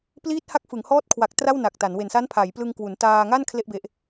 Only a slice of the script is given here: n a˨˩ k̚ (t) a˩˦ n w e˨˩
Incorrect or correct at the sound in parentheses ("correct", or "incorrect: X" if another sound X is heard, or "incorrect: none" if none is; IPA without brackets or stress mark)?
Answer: correct